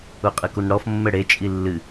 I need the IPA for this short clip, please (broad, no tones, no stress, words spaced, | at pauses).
uqʼɨkunɽɔf mːɘɽe t͡ʃʼilːɨ